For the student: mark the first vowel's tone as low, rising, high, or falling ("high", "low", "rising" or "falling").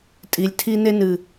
low